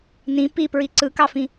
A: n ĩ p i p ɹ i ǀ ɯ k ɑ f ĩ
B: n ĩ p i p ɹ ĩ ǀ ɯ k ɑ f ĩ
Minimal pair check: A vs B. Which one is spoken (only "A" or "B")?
A